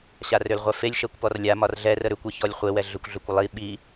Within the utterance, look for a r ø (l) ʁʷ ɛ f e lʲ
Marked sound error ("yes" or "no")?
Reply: no